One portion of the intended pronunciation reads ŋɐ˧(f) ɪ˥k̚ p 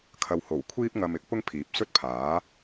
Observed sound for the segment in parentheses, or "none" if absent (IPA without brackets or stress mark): m